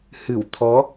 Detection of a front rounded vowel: absent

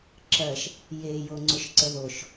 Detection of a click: present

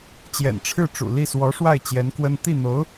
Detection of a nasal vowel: absent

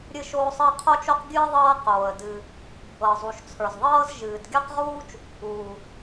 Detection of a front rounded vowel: absent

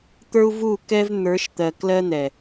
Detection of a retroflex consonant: absent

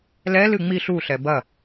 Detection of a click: absent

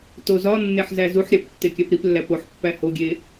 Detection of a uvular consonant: absent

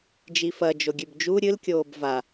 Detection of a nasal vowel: absent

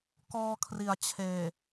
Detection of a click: absent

